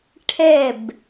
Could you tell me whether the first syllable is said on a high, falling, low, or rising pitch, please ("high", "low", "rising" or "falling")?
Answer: falling